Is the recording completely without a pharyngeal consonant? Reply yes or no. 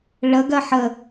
no